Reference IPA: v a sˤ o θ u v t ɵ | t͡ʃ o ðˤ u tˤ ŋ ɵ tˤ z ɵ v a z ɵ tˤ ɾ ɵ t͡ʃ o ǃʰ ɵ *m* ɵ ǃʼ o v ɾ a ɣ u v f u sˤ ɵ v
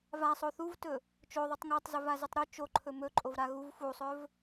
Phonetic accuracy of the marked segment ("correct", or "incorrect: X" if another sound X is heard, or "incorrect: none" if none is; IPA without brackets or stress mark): correct